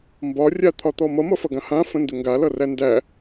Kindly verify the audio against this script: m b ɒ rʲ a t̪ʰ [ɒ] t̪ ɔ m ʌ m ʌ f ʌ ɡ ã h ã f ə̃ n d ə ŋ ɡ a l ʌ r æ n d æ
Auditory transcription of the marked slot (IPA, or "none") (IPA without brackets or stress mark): ɒ